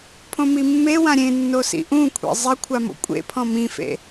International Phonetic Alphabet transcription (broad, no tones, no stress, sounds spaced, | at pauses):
pʰ õ m i mː e w ã ɾʲ ẽ nː o s ḭ ʔ ũ kʷʰ ḛ zˤ ɪ kʷʰ a m o̰ kʷʼ ḛ pʰ ɔ̃ m ĩ f ḛ